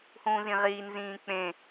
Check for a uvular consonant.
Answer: present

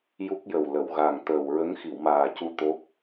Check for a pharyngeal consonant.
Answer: absent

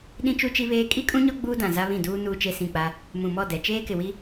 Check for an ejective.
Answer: present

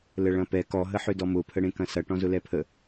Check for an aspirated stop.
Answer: present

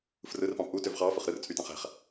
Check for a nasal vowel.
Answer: present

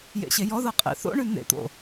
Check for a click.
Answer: absent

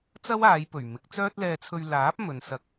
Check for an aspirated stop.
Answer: present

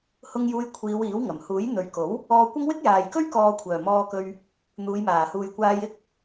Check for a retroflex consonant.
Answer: absent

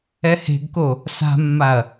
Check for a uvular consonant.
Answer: absent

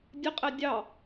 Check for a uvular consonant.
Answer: present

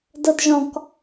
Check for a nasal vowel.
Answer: present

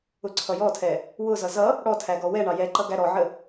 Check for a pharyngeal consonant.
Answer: present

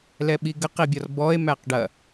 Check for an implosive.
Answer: present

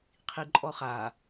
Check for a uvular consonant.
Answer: present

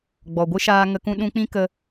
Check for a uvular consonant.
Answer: absent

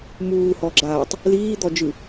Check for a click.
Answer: present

